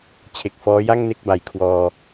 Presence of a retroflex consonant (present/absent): absent